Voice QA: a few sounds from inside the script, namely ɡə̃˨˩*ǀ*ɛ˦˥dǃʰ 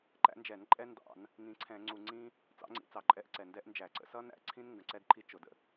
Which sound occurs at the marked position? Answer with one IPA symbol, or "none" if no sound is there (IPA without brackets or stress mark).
ǀ